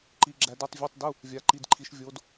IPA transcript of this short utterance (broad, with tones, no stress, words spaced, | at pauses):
ǃi˧˥ɡ͡ǁæ˧˥d ʉ˧˥˧tˤ vʲo˧˥˧tˤdu˧˥˧ | vʲa˧˥ǃi˧˥˧dǃʰi˧˥ʃ vʲo˧˥d